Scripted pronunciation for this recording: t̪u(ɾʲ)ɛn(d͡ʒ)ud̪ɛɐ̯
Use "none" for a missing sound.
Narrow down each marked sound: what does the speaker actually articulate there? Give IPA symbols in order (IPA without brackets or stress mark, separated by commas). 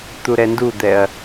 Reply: ɾ, d